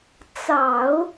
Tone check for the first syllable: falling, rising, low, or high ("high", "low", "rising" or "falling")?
low